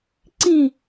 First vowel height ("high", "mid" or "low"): high